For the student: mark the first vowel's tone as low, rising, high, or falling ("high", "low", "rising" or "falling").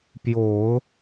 low